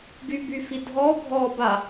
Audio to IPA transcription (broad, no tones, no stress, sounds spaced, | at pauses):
ɡ y b y f i dʱ ɔ bʱ ɔ b a